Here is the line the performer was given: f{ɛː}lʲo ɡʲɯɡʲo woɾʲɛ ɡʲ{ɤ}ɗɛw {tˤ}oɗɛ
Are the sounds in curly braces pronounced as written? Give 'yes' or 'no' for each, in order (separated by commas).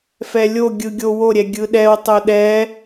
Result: no, no, yes